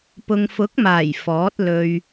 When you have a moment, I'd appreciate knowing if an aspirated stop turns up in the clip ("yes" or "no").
no